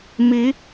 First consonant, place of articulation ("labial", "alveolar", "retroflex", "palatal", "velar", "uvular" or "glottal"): labial